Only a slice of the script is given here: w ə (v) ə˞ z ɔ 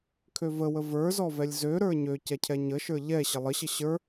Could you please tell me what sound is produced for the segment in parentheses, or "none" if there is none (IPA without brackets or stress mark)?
v